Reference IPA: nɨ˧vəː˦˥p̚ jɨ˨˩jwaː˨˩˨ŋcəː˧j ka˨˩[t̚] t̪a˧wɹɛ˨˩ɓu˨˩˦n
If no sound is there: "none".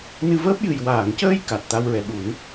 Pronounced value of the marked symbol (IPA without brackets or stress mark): t̚